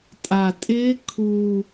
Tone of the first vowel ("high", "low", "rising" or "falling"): low